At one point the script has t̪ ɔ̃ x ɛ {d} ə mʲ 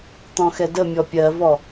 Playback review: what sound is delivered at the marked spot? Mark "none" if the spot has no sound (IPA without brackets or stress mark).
d